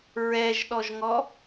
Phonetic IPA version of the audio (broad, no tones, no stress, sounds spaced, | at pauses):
ɹ ɛ ʒ ɗ ɔ ʒ ŋ ɔ